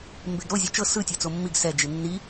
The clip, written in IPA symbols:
m b e ɡ ɾ o zʲ ɔ t͡ʃ ɤ s ɯ tʲ ɤ t͡s o mː i ɡ s ɛ d͡ʒ i nː i

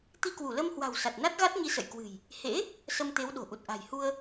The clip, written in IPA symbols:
t̪ i˧ k w u˧˩ l ə˧ m h w a̤˨˩ w s a˨˩ t̚ n a˦˥ t̚ ɣ a˦˥ t̚ ɲ i˧ s ə̰˧˨ j k w ɨ̤˨˩ j | h ḛ˧˥ | s ə˧ m t̪ e˨˦ w ɗ o̤˨˩ ʔ u˨˩ t̚ ʔ a̤˨˩ j h u˧ ə̯

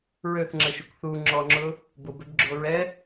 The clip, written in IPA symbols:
ɹ ø θ ŋ͡ǁ ə ʃ u k θ u ŋ͡ǁ ɔ ŋ͡ǁ ʊ | b ʊ b ø b ɡ͡ǁ o ɹ ɛ

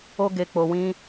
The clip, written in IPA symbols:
o˦ ɡ e˧ k͡p o˧ w ĩ˦

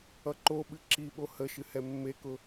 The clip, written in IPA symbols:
ʌ ǃ o ɓ ɨ ǁ i ɓ o h ə ʃ ɨ h ɛ mː e k ʊ

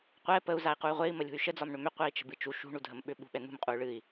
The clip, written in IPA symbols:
qʷ ɛ p ə u̯ z a i̯ q u y̯ ʁʷ e i̯ m ə lʲ ṳ y̯ ʃ ə d͡z ɒ m ɳ ʏ m ʏ qʷ ɛ i̯ t͡ʃ ə̤ b ɨ t͡ʃ u ʃ ṳ ɳ u dʱ ə m ɓ ʏ ɓ ṳ ɓ ɛ n̪ ṳ m qʼ u y̯ ɭ ɨ i̯

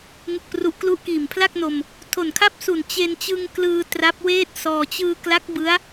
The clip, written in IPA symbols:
ŋ ɯ˨˩ k̚ p r u˨˩ ʔ k l u˦˥ ʔ k iː˨˩ m pʰ l a˥˩ k̚ n o˧ m | tʰ o˨˩ n kʰ a˥˩ p̚ s u˨˩ n t͡ɕ e˧ n t͡ɕ ɯ˧ ŋ k l ɯː˧ t r a˦˥ p̚ w eː˥˩ t̚ s ɔː˧ t͡ɕ ɯː˧ k l a˦˥ k̚ b ɯ˦˥ a̯

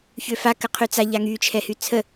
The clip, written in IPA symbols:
ç ø f a k ə qʰ y t͡s a ʎ a ŋ y t͡ʃʰ ɛ h y t͡sʰ ə

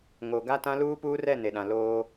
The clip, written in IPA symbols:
ŋ o˨ ɡ a˦ t ã˦ l uː˦ p uː˦ r ɛ˦˨ n e˨ ɗ ã˨ l oː˦

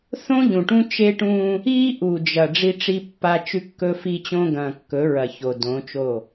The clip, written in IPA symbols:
θ õ˦ ʎ ũ˨ ʈ ũ˦ t͡ʃ e˦ ʈ ũː˦ | iː˦ ʔ u˨ d͡ʒ ɐ˨ ɖ͡ʐ i˦ ʈ͡ʂ i˦ pː a˦ t͡ʃ ʉ˦ kː ɵ˦ f i˦ t͡ɕ õ˦ ɡ ɐ̃ː˨ kː ɵ˨˦ ɹ ɐ˨ ç o˨ d õ˨˦ t͡ʃ o˦˨

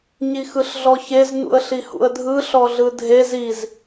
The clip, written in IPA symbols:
ɲ i x ɯ ɬ ɮ ɔ ç e z n ṵ ə̯ ɬ i h ṵ ə̯ dʱ ɯ ɬ ɔ ɮ ɯ dʱ e z i z

